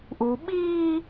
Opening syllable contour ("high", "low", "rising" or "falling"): low